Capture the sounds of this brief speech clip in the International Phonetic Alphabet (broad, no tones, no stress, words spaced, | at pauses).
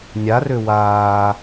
nʲarø waː